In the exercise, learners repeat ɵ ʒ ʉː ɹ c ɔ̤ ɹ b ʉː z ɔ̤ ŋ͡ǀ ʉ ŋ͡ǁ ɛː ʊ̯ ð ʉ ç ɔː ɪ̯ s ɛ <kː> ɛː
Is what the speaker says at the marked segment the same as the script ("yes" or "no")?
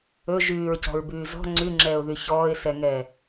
no